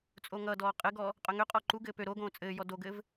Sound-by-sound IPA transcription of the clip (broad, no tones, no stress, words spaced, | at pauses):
t͡sʼoŋʌdɔː qʼɘɡɔ | qʼœŋøqʼɔ ǃuɡɘː pø ɾoɡõː t͡sʼɘːjɔ doɡɘːv